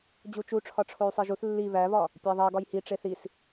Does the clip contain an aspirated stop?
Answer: yes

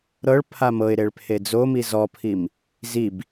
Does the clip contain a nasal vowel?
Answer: no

